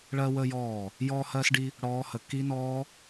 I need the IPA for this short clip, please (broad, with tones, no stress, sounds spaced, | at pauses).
ɭ ɜ˧ w əː˧ j ɔː˧˩ | j ɔː˧ h ɜː˧ s ɖ i˧ | ɽ ɔː˦˥ h ə˧ k i˦˥ n ɔː˦˥